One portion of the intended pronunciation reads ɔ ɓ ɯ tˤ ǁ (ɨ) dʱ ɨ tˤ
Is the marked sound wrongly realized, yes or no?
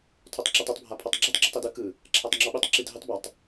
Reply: yes